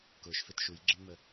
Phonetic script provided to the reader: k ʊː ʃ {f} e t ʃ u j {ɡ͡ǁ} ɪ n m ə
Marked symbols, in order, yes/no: yes, yes

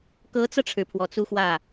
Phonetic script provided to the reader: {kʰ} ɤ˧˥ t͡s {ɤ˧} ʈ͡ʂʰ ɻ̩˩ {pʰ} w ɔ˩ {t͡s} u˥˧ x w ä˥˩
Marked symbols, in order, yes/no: no, yes, yes, yes

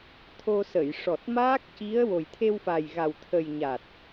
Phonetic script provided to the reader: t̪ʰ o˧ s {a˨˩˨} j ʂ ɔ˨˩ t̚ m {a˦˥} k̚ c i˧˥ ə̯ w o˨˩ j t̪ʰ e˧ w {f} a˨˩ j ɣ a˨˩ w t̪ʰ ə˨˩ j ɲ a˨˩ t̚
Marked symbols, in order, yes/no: no, no, yes

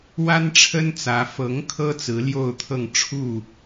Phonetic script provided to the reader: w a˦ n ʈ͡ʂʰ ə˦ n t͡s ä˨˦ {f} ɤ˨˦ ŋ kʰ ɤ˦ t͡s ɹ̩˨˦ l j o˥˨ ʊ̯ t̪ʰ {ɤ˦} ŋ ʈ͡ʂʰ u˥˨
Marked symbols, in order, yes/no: yes, no

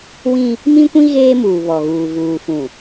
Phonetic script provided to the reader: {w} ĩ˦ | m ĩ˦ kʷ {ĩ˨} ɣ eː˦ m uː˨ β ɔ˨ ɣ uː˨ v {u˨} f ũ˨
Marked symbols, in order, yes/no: yes, no, no

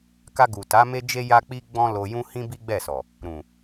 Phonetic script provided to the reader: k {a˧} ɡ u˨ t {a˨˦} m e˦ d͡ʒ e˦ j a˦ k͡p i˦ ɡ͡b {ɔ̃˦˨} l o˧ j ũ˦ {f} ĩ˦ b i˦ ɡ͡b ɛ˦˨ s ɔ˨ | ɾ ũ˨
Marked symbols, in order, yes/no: yes, yes, no, no

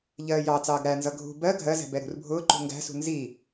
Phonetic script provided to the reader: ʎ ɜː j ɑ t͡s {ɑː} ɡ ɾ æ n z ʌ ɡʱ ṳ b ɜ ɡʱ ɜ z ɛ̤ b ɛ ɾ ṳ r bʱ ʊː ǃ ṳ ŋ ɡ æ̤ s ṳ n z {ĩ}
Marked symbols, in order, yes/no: yes, no

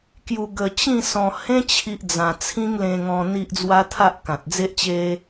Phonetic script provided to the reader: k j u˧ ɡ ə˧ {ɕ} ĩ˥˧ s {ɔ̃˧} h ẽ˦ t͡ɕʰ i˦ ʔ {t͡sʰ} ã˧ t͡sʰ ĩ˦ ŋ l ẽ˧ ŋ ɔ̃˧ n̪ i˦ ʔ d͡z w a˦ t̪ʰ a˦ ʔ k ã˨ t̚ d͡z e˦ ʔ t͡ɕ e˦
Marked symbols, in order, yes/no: no, yes, no

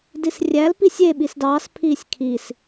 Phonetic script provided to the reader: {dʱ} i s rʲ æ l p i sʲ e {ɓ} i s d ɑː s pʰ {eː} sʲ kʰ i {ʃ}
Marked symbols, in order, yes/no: no, yes, no, no

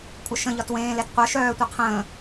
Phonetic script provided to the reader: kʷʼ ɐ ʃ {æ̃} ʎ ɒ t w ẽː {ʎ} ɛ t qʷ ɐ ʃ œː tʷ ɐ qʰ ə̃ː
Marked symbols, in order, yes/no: no, no

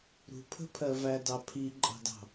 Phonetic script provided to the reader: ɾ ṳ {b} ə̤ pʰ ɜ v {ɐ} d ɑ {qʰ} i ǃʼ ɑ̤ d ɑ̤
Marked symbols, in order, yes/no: no, no, no

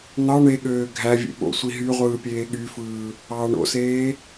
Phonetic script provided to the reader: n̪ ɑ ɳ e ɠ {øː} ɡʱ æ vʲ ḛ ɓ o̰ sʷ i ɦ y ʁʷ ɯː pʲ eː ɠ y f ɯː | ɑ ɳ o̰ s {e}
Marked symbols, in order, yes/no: yes, no

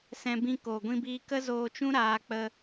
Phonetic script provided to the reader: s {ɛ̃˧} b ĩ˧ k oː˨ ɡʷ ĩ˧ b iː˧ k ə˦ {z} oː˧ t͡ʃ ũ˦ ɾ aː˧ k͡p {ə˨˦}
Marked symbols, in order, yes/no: yes, yes, no

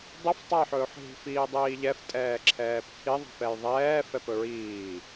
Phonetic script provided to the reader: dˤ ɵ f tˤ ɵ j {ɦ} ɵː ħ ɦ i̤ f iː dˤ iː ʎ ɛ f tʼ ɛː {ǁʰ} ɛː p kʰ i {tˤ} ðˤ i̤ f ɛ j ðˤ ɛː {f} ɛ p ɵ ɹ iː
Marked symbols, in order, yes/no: no, yes, no, yes

